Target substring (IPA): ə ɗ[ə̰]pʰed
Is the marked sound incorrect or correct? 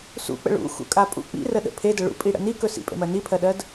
correct